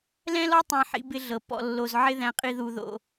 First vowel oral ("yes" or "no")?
no